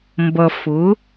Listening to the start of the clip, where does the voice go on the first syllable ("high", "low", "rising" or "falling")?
low